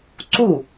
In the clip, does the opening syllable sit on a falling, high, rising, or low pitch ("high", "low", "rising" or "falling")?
falling